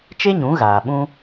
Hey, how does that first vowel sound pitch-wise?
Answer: high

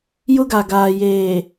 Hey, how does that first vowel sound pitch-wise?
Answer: high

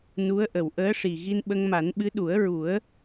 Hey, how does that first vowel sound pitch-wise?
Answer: rising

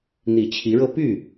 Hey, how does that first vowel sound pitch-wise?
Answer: low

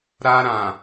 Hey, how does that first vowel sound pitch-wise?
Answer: high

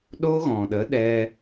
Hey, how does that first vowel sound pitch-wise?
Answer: high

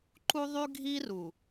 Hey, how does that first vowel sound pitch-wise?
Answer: high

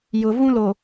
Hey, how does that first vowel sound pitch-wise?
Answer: low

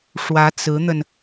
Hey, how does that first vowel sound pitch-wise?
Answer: rising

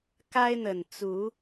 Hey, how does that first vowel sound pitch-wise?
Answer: high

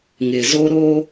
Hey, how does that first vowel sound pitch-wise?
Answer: low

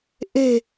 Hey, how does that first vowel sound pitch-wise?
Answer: low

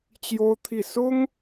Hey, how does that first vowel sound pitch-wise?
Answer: high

